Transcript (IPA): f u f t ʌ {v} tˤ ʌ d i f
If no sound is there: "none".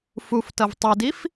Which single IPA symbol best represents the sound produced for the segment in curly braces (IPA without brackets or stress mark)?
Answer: v